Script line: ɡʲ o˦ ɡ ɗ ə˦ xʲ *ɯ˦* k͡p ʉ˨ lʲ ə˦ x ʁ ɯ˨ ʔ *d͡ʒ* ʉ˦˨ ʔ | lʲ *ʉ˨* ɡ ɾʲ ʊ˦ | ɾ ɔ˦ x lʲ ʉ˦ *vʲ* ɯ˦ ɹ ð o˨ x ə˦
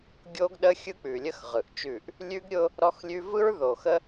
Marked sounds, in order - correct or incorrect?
correct, incorrect: t͡ʃ, incorrect: ʉ˦, incorrect: v

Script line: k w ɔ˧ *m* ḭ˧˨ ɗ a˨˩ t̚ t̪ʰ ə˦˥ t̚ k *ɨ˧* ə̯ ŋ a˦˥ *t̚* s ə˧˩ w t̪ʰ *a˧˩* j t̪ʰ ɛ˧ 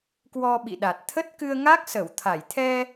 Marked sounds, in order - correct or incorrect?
incorrect: ɓ, correct, incorrect: k̚, correct

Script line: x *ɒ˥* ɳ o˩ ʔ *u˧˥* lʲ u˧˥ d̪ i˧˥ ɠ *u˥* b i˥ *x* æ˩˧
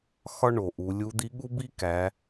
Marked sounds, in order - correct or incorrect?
correct, incorrect: u˩˧, correct, incorrect: k

